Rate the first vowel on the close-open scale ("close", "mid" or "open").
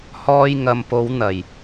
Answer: mid